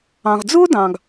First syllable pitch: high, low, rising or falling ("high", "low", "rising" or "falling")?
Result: low